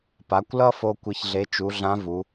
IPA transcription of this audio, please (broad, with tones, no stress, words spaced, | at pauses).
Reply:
pa˩˧kʷlʌ˥fo˧ kʷi˧çɮe˧˥ t͡ʃu˩˧ɮã˧˥ vu˩˧